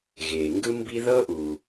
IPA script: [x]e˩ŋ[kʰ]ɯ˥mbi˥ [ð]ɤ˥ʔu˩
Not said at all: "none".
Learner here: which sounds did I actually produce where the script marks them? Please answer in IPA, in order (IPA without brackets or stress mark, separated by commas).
ɣ, ɡ, ð